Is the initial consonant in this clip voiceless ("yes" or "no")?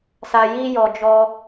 yes